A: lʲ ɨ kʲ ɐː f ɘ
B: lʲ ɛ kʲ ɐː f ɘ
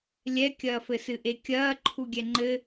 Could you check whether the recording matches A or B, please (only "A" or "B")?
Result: B